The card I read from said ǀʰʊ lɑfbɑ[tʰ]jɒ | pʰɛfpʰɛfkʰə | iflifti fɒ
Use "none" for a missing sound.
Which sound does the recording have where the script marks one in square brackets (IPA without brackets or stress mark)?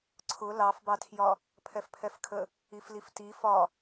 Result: tʰ